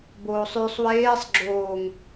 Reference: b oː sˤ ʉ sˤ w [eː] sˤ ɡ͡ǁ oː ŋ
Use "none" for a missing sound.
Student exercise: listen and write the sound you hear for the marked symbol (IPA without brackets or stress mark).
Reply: eː